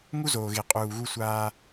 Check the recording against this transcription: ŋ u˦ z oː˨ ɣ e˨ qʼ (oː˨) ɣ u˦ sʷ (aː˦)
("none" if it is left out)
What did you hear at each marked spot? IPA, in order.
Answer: uː˨, aː˦

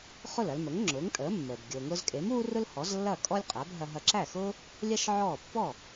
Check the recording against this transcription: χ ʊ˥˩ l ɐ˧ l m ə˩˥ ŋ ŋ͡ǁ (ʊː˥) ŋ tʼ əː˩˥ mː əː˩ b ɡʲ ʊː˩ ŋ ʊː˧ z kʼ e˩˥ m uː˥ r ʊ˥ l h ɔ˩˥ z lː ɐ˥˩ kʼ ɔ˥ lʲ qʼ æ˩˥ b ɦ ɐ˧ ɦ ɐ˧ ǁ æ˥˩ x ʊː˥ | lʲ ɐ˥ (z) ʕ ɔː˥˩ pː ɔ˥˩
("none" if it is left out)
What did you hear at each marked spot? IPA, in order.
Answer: ʊː˩˥, ʃ

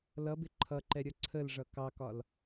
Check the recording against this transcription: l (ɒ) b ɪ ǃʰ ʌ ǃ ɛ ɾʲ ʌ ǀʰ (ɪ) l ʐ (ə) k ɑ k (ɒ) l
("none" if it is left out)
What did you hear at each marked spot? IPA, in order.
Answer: ʌ, ə, ʌ, ɒ

